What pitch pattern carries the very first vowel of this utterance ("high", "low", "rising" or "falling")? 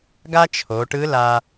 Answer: high